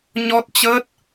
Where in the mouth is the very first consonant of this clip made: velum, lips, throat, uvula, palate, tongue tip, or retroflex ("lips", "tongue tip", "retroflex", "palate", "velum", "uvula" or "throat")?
palate